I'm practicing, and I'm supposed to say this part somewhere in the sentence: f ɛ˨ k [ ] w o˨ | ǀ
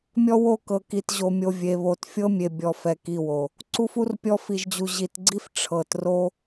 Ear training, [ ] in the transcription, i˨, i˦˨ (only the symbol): i˦˨